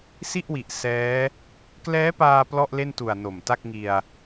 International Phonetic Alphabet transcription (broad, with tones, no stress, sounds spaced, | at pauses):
s i˥˩ ʔ w i˨˩ ʔ s ɛː˦˥ | k l ɛː˦˥ p aː˧ p l ɔ˥˩ ʔ l e˥˩ n t u˨˩ a̯ n o˨˩ m t a˥˩ k̚ ŋ i˧ a̯